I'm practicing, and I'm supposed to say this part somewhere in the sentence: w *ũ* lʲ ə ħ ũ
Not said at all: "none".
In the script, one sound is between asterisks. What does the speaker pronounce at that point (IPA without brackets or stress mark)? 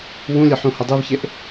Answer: ũ